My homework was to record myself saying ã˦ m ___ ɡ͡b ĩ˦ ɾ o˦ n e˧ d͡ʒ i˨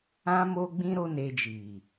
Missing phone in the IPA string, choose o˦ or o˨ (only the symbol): o˦